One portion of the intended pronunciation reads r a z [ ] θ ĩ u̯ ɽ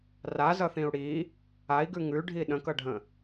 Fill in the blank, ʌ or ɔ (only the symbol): ʌ